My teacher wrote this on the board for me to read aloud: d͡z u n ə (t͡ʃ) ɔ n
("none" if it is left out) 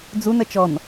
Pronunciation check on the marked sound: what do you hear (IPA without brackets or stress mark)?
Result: t͡ʃ